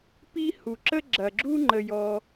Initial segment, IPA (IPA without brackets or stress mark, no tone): p